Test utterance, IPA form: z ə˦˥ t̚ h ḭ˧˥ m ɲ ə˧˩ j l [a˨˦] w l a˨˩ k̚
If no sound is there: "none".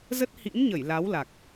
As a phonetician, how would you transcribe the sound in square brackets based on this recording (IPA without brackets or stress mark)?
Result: a˨˦